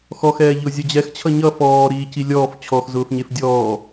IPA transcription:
x ɔ x ɛː ʎ ʊ zʲ ʌ d͡ʑ ɛ x t͡ɕʰ ʌ ɲ ʌ f ɔː ɾ iː c i lʲ ɔː f t͡ɕʰ ɔ x z ʊː f ɲ e f dʲ ɔː

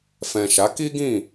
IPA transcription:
f ɛ̃˨ ʃ a˨˦ k i˦ ɡ ĩ˦˨

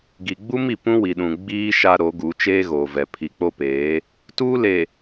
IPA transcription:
ɡ i˨ ɡ͡b u˦ m i˨ p ũ˦ w i˨ ɗ ũ˨ ɡ͡b iː˦ ʃ a˦ ɾ o˨˦ ɡ u˨˦ t͡ʃ eː˦ ɣ oː˨ v ɛ˨ pʰ i˨ k͡p o˦ p eː˨˦ | t uː˦ l e˨

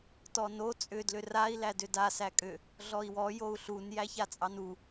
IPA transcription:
t ɔ n o t͡sʼ ʏ d l ʏ r a i̯ l æ d ʏ d a s æ kʼ ʏ | ɮ ɔ i̯ w ɔ j o u̯ ɬ u n j æ ç a t͡sʼ ɑ n u

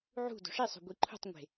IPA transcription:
ʕ ṳ d o̤ ʂ i sˤ o̤ ɡʷ i ǃʰ ṳ tˤ ŋʷ e̤

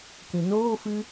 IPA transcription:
k ĩ n oː f ɨ

